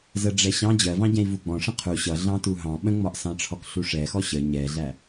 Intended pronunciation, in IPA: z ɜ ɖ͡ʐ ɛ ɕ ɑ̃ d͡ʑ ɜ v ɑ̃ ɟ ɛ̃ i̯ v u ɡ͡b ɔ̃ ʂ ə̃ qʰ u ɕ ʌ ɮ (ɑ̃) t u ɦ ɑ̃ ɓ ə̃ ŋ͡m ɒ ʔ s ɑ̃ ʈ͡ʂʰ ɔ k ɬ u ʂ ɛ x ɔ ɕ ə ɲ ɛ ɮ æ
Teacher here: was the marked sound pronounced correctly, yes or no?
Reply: yes